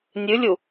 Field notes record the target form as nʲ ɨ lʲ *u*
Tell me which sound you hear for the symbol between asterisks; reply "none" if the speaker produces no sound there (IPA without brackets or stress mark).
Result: u